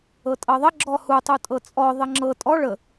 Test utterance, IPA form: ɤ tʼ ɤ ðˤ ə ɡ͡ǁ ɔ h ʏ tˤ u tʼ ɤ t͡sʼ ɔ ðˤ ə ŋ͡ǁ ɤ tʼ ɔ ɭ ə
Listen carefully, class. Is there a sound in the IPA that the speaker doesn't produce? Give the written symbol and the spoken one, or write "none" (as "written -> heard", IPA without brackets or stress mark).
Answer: ʏ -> u